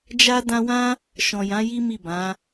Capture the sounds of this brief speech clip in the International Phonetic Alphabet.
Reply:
d͡ʒ a˦ d ã˧ w ã˦ | ʃ ɔ̃˨ j ã˨˦ j i˦ m i˦˨ b ã˨˦

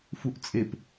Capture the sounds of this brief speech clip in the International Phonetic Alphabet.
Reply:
f u ʔ t͡sʼ e p

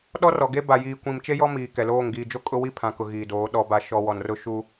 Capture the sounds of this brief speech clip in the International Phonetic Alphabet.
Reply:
ɗ ɔ˦ r ɔ˨ ɡ e˦ b a˨ j iː˨ kʷ ĩ˨ m t͡ʃ e˦ j ɔ˦ m iː˨ k ɛ˨ l oː˦˨ ŋ ɡ iː˨ d͡ʒ o˦ kʼ ʊ˦ w i˦ pʰ ã˨ k ʊ˨ ɣ iː˨ d oː˨˦ ɗ ɔ˦ b a˨ ʃ ɔ˨ w ɔ˨ n r ʊ˦ ʃ uː˦

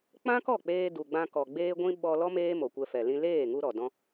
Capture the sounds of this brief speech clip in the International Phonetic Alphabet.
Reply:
k͡p ã˦ k ɔ˦˨ k͡p eː˧ d u˨ ɡ͡b ã˧ k ɔ˨ ɡ͡b eː˦ ɡʷ ĩ˦ ɓ ɔ˧ l ɔ˦ m eː˦ m o˨ kʷ ɛ˧ f ɛ˨ l ĩ˧ l eː˦˨ ŋ u˧ ɾ ɔ˨ d ɔ̃˦

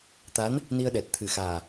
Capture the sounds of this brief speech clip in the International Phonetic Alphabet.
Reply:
t̪ a˧˥ n | n i˧ ə̯ ɗ ɛ˨˩ t̚ t̪ʰ ɨ˨˩ x aː˨˩

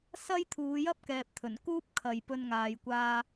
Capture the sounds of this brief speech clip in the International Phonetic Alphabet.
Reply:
s ɐ˥ j t̪ʰ uː˨˧ j ɐ˥ p̚ k ɛː˨ p̚ t̪ʰ ɵ˨˩ n k uː˥ p̚ kʰ ɐ˨ j p ɵ˧ n ŋ aː˨ j kʷ aː˧

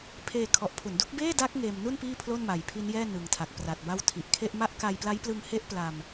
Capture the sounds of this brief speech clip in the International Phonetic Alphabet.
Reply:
pʰ eː˧ kʰ ɔ˨˩ ʔ pʰ u˩˦ n d u˦˥ k̚ b eː˥˩ d a˦˥ k̚ ŋ eː˧ m n u˥˩ n p iː˥˩ pʰ l o˥˩ n m a˨˩ j pʰ i˦˥ n j ɛː˥˩ n ɯ˨˩ ŋ tʰ a˨˩ k̚ p r a˨˩ t̚ b a˥˩ w tʰ i˨˩ ʔ kʰ e˥˩ ʔ m a˥˩ ʔ k a˧ j p l a˦˥ j p l ɯ˧ ŋ h e˥˩ ʔ p l a˧ m

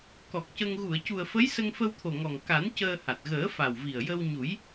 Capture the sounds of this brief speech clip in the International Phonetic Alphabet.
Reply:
k ɔ˨˩ k̚ c ə˧ ŋ ɣ u˨˩˨ ə̯ c u˨˩ ə̯ f ə˧˥ j s ə˧ ŋ f ə˧ w t̪ʰ o˨˩ ŋ ɔ˨˩ ŋ k a˨˩˦ n c əː˧ h a˨˩ t̚ ɣ əː˨˩˦ f a˨˩ w v i˨˩ ə̯ j ə˧ w ɲ u˨˩˦ j

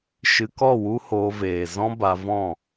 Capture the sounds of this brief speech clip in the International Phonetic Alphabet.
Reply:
ʃ ɨ˧ k ɔ˦˨ w u˦ h oː˧ v eː˨ z ɔ̃˦ b a˧ v ɔ̃˦˨

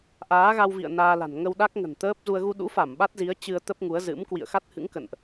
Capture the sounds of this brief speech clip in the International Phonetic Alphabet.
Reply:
ʔ aː˨˦ ɣ a˧ w v ḭ˧˨ ə̯ n aː˧ l a̤˨˩ n ŋ ə˧ w ɗ a˦˥ k̚ ŋ ə̤˨˩ n t̪ əː˦˥ p̚ z u˧ ə̯ ɣ u˧ ɗ ṵ˧˥ f a˧˩ m ɓ a˦˥ t̚ z i˨˦ ə̯ t͡ɕ ɨ˧ ə̯ t̪ ə˦˥ p̚ ŋ u˨˦ ə̯ z ɨ̰˧˥ m k w ḭ˧˨ ə̯ x a˦˥ t̚ h ɨ̰˧˥ ŋ k ə̰˧˨ n ʔ

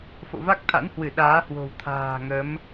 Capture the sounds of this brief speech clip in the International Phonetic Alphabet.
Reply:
f o̰˧˨ v a˦˥ k̚ t̪ʰ a̰˧˥ n h w ɨ˧˩ ɗ aː˨˦ h w o̤˨˩ w t̪ʰ a̤ː˨˩ ŋ ə˨˦ m

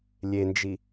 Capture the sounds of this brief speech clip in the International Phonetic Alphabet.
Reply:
lʲ e n d͡ʒ i

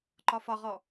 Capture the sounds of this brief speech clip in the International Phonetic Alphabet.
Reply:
ǃ ɒ f ɒ ʁ ɔ

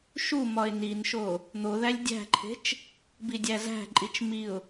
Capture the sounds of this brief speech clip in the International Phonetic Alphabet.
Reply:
ʃ u m ɒ ɪ̯ n i n ʃ o | n̪ o ð æ lʲ dʲ æ̤ ǃʰ e̤ t͡ʃ | b i dʲ æ z æ̤ ǃʼ i t͡ʃ m i ʊ̯

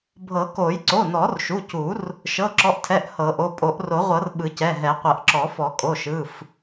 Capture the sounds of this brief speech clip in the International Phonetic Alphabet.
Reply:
bʱ ɤ˨˩˦ k o˨˩˦ j ǀ o˩˧˩ n ɔ˨˩˦ r ʃ u˩˧˩ c u˨˩˦ r | ʃ ɤ˩˧˩ ǁ ɔ˩˧˩ ʔ tʰ ɛ˩˧˩ ʔ h ɤ˨˩˦ ʔ o˩˧˩ pʼ o˨˩˦ ʔ r o˨˩˦ ʁʷ ɤ˨˩˦ r ɓ ɯ˨˩˦ c ɛ˩˧˩ ɦ ɛ˨˩˦ qʷ ɤ˨˩˦ ʔ ǁ ɔ˨˩˦ f ɔ˨˩˦ kʼ o˩˧˩ ʃ ɯ˩˧˩ f

